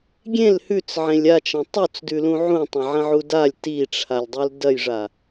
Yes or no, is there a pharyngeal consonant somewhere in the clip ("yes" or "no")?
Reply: yes